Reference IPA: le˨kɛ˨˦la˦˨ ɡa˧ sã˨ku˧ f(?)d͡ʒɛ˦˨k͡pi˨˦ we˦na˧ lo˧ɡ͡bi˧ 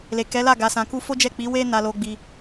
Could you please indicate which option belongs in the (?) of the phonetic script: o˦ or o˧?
o˦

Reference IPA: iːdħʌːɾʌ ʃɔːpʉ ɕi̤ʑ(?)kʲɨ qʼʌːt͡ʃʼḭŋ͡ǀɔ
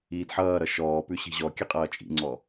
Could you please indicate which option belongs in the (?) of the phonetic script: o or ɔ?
ɔ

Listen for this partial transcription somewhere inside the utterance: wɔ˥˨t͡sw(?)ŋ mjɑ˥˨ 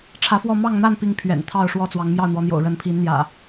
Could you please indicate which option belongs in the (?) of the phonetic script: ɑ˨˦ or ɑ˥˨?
ɑ˨˦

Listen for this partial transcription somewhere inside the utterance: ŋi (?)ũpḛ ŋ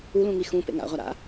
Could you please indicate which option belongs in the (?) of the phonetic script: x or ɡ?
x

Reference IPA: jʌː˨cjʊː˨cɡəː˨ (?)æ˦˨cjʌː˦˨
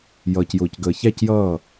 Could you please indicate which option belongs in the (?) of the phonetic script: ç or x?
ç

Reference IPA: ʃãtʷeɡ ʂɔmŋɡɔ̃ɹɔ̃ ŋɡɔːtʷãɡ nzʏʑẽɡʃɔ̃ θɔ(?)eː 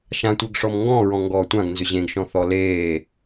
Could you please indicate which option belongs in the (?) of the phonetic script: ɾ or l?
l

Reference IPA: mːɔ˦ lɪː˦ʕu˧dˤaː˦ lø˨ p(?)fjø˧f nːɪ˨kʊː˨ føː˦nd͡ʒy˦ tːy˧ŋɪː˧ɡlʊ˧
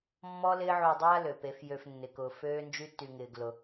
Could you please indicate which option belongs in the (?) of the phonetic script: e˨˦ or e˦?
e˨˦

